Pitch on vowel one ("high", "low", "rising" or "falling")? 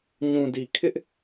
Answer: low